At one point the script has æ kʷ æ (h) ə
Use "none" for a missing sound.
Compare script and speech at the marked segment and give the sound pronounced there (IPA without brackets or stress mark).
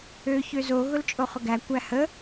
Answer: h